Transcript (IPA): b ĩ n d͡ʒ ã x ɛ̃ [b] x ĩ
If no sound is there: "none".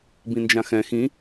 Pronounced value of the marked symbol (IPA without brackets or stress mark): none